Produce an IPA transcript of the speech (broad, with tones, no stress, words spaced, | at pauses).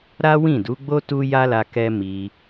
ɾa˦wĩ˦˨du˨˦ɡ͡bo˦ tu˦ja˦la˧ kɛ˦ mi˧